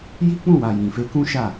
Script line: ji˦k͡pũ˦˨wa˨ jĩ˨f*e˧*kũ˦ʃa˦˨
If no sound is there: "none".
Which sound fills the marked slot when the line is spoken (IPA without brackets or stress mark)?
e˧